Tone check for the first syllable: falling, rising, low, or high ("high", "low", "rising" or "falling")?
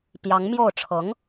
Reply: rising